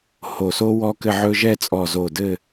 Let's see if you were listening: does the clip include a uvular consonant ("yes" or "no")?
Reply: no